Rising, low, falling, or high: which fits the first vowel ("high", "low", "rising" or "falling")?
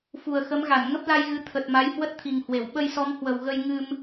low